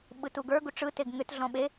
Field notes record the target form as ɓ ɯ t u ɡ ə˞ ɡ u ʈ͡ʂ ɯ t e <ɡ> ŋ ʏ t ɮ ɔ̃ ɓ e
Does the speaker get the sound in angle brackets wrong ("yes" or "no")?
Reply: no